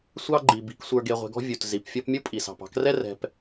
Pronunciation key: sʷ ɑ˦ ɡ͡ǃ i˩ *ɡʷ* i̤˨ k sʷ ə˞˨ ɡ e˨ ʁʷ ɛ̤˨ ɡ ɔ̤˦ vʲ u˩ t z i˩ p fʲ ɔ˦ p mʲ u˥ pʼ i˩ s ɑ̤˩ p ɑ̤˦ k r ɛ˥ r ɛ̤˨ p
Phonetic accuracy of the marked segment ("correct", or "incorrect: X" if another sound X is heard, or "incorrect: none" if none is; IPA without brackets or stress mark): incorrect: b